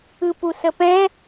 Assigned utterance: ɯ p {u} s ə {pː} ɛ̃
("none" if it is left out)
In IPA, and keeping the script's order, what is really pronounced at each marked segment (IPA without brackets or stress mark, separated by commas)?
u, p